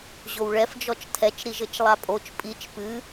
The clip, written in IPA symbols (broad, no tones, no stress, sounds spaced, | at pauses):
ʑ o w ɭ ɛ f d͡ʒ ɔ t͡ʃ tʰ ɛ t͡ʃ ɾ i ʒ ɘ t͡ʃ lˠ a pʼ o t͡ʃ pʼ i t͡ʃ p ɨ